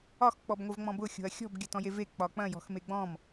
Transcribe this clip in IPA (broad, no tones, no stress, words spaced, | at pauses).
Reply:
ɒx k͡pɔbŋʷəvŋ͡mɔ̃bʊ xʲo̤ɐ̯xʲɔ̤b ɡʲɐtɔ̃jeve k͡pɒk͡pɐ̃ jɔ̤xmeɡ͡bɔ̃m